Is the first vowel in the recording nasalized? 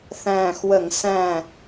yes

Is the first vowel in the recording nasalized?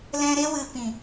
yes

